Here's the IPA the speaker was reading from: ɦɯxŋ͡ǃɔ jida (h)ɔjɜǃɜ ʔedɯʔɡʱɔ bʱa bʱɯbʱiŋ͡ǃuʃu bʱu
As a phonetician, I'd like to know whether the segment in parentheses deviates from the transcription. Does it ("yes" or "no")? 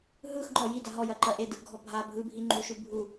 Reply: yes